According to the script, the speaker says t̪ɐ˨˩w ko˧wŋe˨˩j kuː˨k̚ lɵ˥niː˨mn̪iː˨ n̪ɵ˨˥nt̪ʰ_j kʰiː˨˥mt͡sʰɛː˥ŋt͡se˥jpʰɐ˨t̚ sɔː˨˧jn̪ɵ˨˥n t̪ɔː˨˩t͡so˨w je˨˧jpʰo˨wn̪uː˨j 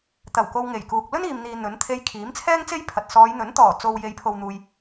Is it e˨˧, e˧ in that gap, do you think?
e˧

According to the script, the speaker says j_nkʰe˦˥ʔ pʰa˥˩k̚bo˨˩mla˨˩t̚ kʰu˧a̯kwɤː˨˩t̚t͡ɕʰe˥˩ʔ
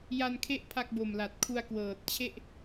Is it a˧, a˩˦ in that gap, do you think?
a˧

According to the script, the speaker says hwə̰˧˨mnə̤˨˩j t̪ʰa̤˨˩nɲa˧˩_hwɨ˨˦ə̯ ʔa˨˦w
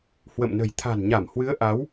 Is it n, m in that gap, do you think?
m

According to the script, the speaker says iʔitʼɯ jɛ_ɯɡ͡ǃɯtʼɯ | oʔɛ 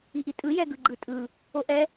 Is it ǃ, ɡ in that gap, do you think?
ɡ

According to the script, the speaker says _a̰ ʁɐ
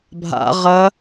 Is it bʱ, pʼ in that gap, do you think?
bʱ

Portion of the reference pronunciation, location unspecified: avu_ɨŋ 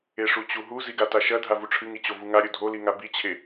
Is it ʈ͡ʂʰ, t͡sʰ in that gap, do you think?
ʈ͡ʂʰ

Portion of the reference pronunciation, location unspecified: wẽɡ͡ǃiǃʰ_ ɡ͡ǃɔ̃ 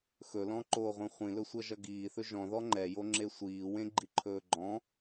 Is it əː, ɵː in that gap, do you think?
ɵː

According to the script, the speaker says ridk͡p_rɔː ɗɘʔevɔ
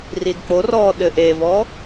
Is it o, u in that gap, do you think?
o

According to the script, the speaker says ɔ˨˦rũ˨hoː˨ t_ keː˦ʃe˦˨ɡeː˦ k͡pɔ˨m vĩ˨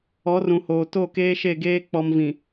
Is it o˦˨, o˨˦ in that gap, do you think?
o˦˨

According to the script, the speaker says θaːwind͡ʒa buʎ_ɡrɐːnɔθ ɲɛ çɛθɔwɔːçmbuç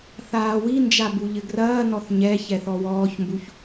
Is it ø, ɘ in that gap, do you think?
ɘ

